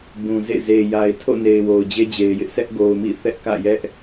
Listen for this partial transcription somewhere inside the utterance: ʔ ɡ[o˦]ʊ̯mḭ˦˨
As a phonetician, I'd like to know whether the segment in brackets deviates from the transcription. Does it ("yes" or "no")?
yes